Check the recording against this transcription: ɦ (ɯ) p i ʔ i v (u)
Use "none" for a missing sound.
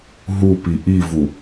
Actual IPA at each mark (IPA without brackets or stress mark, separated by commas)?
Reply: u, u